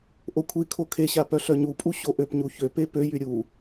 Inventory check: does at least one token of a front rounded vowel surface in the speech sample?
yes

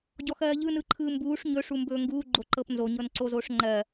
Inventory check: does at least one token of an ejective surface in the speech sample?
no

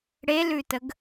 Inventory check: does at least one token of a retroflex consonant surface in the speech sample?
yes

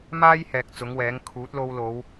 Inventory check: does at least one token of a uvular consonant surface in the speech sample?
no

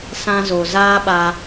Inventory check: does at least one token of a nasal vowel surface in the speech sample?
yes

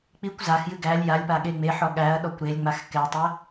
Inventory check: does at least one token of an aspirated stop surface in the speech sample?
no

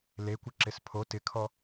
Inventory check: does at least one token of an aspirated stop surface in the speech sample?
yes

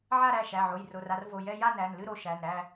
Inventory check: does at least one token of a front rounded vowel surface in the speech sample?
no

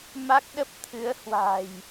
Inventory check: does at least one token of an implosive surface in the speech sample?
yes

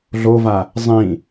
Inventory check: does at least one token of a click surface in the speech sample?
no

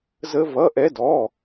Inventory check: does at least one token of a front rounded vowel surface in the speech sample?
no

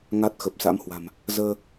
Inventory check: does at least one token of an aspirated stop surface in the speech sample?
no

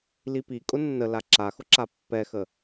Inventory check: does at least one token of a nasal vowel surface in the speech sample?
no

